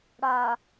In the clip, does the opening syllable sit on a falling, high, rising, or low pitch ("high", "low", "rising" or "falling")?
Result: low